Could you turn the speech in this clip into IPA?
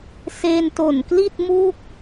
s e˧ n t o˨˩ n k l i˥˩ t̚ m u˥˩ k̚

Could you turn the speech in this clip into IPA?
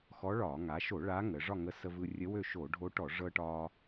x ɔ˧˥ ɭ ɒ˧˩˧ ŋ a˩˧ ʃ o˧˩˧ ɭ a˧˥ ŋ ə˩˧ ʐ ɒ˥˨ ŋ ə˧˥ s ə˧ v ɯ˧ rʲ ə˧˥ w ø˥˨ ʃ o˧˩˧ ɖʱ o˧˥ ʈ ɔ˧˩˧ ʐ ɤ˧ ʈ ɒ˧

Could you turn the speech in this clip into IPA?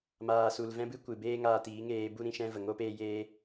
m aː˨ s u˨ l v ɛ̃˦ b ɨ˦ kʷ ɨ˨ b eː˦ ŋ aː˧ t iː˨˦ ŋ eː˧ b u˦ ɾ ĩ˧ ʃ ɛ̃˦ v ə˨ ŋ oː˦ p eː˧ j eː˦

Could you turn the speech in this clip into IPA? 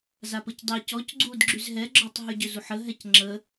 z a p ə c dˤ i c ɔ c ɡ͡ǀ u d ɡ͡ǁ y z ɦ ɛ ɡ͡ǁ ɔ tˤ ɦ y ɟ ø z u ħ ə ɦ ɛ c ŋ͡ǁ ə

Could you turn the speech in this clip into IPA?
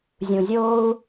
zʲ ũ˨ zʲ oː˧ u̯

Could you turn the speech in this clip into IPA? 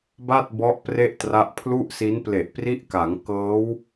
b a˥˩ t̚ b ɔ˦˥ ʔ p r e˥˩ ʔ t r a˦˥ ʔ pʰ l u˥˩ ʔ s i˦˥ n p l e˨˩ ʔ p r i˦˥ ʔ k a˩˦ ŋ k ɤː˦˥ w

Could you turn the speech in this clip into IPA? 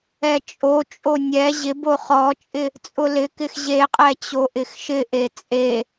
ɛ t͡ʃʼ o t͡ʃʼ o nʲ ɛ ʑ ɪ b o χ ɔ t͡ʃʼ ɪ | t͡sʼ ʊ l ɪ k ɪ x ʑ e qʼ ɛ t͡ɕ o ʔ ɪ x ʃ ɪ ʔ e t͡sʼ e

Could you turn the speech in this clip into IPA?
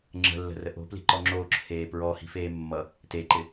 ŋ͡ǁ ə̤ lː ə̤ r ə ʔ o̤ p l i̤ ǃ ɔ ŋ͡ǁ o ǁʰ eː p ɹ ɔ h i̤ f eː mː ʌ | t e ǃ ɪ

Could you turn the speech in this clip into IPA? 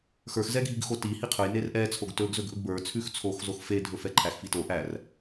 x ə˞ x z ɛ ɡʱ i ɡ x o t i h i qʰ ɵ j n e r ʔ ɛ t͡sʰ o ɡ t ɵ ɡ z ɵ ɡ ʔ ɵ ɡ b ə˞ t͡sʰ ʉ x t͡sʰ o x z o x f e dʱ ɵ f ɛ ǃʰ æ x f i t o ʔ æ r

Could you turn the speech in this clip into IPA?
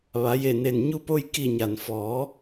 ʋ a˩˧ j e˧˩ n e˧˩ n ɲ u˧ p o˧ j k i˧˩ ɲ a˩ n f ɔː˩˧

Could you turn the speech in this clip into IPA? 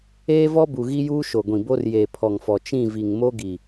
eː˦ v ɔ˦ b u˨ ɣ i˦ j uː˦ ʃ o˨ ɡʷ ĩ˨ b o˦ r j eː˨ pʰ ɔ˨ ŋ f ɔ˨ t͡ʃ ĩ˦˨ v i˨ ŋ m o˦ ɡ i˨

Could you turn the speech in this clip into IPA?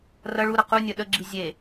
r ɐ ɭ u ɾ ɐ q u nʲ ɐ ɗ ə ɡ͡ǁ i zʲ e

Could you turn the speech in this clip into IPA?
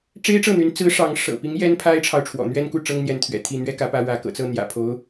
ʈ͡ʂ e˥ ɪ̯ ʈ͡ʂ ɤ˥˩ n̪ y˧˥ n t͡s ɹ̩˧˥ ʂ ɑ˧˥ ŋ ʂ ɤ̰˨˩ p i˧˥ ŋ j ɛ˥ n pʰ a˥ ɪ̯ ʈ͡ʂʰ ɑ˨ ʊ̯ ʈ͡ʂʰ w ɔ̰˨˩ n̪ ɥ ɛ˥ n k u˥˩ ʈ͡ʂ ɤ˥ ŋ n̪ j ɛ˧˥ n t̪ʰ ɥ ɛ̰˨˩ t̪ʰ i˥˩ n̪ ɥ ɛ˥ k ä˧˥ p ä˧˥ ɻ ä˧˥ k ɤ̰˨˩ t͡s ɤ˥˩ n̪ j ä̰˨˩ pʰ o˧˥ ʊ̯

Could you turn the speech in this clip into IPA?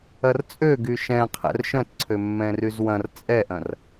ɐ r t͡sʼ ø ɡ y ʃ ɛ̃ qʰ ɛ̰ r ʃ œ̃ t ǀʰ ø mː ɛ̃ r y z w ɐ̃ r t͡sʼ ɛ ʔ ɐ̃ r

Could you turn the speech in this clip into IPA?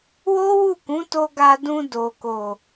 w o˦ w u˦˨ k ũ˨˦ t o˧ ɡ a˧ d ũ˧ d o˨ k o˨

